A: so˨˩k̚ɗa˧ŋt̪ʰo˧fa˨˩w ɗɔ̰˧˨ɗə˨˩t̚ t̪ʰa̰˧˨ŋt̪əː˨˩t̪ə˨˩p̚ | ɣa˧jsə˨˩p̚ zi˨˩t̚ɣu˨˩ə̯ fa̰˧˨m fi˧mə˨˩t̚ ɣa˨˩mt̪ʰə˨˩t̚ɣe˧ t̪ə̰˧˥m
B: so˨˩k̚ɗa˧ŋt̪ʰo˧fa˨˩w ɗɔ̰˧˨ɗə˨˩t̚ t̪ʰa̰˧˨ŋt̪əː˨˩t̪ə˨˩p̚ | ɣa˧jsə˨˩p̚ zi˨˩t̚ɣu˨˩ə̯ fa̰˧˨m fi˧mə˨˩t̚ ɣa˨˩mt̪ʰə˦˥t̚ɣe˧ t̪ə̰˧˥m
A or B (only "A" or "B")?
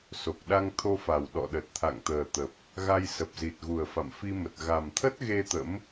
B